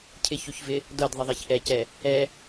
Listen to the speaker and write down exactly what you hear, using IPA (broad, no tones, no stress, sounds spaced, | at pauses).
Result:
cʰ ɪ ç u ç v ɪ | d ɤ d ðˤ ɪ ðˤ e ç ʔ ɛ c ɛ | ɛ